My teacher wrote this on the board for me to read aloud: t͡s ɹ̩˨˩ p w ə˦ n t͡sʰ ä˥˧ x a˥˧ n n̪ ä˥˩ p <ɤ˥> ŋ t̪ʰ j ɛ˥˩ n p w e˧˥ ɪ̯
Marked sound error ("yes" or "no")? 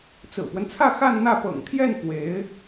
yes